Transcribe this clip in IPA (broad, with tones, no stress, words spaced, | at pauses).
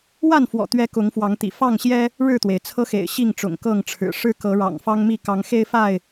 wa˥˨nfwɔ̰˨˩t̪ɥɛ˨˦ kʊ˨˦ŋfwɑ˨˦ŋt̪ḭ˨˩ fɑ˥˨ŋɕjɛ˦ | ɻɻ̩˥˨t̪we˩ɪ̯t͡sʰɤ˦xḛ˨˩ɪ̯ ɕi˥˨ŋʈ͡ʂʊ̰˨˩ŋkɤ˥˨ŋʈ͡ʂʰɻ̩˨˩ ʂɻ̩˦kɤ˨˦ɻɑ̰˨˩ŋ fɑ˦ŋmi˥˨ kɑ˨˦ŋxe˦ɪ̯fa˥˨ɪ̯